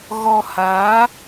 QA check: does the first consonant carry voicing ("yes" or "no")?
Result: yes